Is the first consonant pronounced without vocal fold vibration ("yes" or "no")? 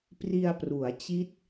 yes